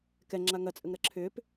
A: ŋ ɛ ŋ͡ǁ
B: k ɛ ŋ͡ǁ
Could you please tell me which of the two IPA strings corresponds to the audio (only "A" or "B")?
B